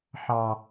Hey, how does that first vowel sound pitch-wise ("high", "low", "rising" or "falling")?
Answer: low